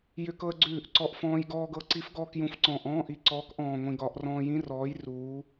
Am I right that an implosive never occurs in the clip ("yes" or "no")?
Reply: yes